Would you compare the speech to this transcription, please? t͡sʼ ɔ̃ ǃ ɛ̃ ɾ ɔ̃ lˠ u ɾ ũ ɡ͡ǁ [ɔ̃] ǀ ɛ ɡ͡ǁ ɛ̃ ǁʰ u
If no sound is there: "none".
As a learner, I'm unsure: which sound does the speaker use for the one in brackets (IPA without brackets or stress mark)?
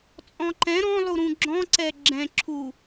ɔ̃